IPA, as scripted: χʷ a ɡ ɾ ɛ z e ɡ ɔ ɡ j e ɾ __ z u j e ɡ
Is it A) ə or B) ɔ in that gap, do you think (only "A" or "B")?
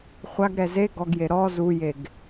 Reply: B